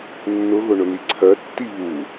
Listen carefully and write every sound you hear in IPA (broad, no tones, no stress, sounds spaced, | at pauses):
nː ʊ ɣ ʊ ɳ ʊ n i ǀʰ ɜ tː i β u